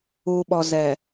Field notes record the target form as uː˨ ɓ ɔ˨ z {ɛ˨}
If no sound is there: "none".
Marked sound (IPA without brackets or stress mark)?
ɛ˨